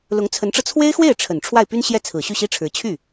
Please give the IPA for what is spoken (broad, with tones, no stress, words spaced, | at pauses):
lʊ˧˥ŋt͡sʰə˧˥nʈ͡ʂɤ˧ t͡sʰwe˥ɪ̯xwe˥˩ɪ̯ ʈ͡ʂʰə˨˩n ʈ͡ʂʰwa˥˩ɪ̯py˥nɕjɛ˥˩t͡sʰɹ̩˨˩ ɕy˥˩ɕi˥ʈ͡ʂʰɻ̩˧˥ t͡ɕʰy˥˩